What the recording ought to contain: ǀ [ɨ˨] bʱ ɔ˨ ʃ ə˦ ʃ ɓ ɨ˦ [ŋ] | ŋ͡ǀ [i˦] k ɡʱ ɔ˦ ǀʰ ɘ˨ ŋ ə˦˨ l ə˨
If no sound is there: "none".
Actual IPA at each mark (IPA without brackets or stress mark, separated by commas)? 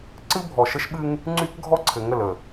ɨ˦, ŋ, y˦